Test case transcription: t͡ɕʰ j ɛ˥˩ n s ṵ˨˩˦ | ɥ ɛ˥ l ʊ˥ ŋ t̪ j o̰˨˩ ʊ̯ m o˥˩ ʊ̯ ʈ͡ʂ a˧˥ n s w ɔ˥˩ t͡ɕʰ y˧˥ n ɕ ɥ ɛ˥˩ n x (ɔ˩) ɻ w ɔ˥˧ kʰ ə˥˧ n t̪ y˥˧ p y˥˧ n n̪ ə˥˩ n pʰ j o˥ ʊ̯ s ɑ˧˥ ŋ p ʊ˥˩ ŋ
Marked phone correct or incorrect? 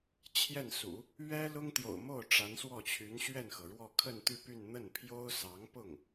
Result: incorrect: ɤ˩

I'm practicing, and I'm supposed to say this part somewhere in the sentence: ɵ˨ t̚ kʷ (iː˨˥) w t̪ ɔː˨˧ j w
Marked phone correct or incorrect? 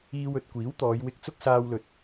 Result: correct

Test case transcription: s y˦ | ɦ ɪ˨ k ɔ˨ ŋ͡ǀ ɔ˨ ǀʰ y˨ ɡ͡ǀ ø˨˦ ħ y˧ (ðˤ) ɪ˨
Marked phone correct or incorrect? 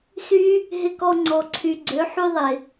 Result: correct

